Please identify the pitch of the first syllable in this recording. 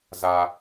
high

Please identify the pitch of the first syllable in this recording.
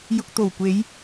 low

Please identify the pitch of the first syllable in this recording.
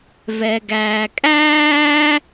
low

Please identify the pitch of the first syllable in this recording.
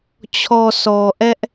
low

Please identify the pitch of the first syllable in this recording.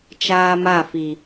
high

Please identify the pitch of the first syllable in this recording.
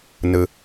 low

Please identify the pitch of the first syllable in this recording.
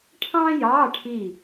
high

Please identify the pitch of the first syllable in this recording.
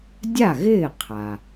falling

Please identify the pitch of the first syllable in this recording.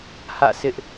falling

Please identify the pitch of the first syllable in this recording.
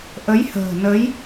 rising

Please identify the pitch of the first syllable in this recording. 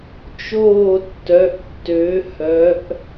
falling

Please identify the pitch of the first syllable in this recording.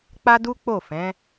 high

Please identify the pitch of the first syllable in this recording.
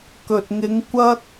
low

